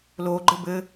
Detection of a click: present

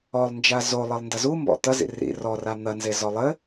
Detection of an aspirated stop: absent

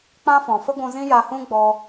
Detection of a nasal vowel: present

